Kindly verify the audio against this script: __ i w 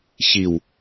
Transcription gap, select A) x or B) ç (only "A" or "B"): B